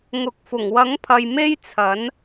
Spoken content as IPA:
ŋ ʊ˨ k̚ f ʊ˨˩ ŋ w ɐ˨˥ ŋ pʰ ɐ˨ j m e˥ j t͡sʰ ɐ˨˥ n

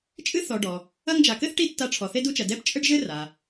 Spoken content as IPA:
t͡ʃʼ ɨ˥ θ ɔ˨ ɖ ɔ˩ | ɐ˦ ŋ d͡ʒ a˨ k ɘ˥ θ ʈ i˦ tː a˦ ʈ͡ʂʰ ɔ˨ θ e˥ d u˦ t͡ʃ ɐ˨ d ɛ˦ p t͡ʃʼ ɘ˥ ɖ ʒ ɘ˥ r a˩

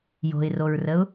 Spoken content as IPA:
j o̤ ɪ̯ r o ɹ r ə ʊ̯

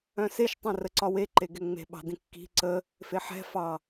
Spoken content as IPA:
œ̃ s e ʃ tˤ œ̃ r ə ǀ ɒ w e ǃ e ɡ ɛ ŋ͡m e̤ ɓ ɑ̤ d ĩ kː i̤ ǀ ə | f e ħ ɛ̤ f ɑ

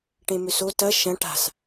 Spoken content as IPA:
ʈ ẽ m ʏ s o t ɐ ʃ ɐ̃ ʈ a̤ s

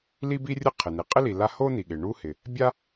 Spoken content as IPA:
l i˥ b i˥ rʲ ə˥ qʰ ɪ˩ n i˩ qʼ ɪ˥ l i˩ l a˥ h o˥ n i˩ ɠ ɪ˩ ɳ u˥ h ɪ˩ | bʲ a˥

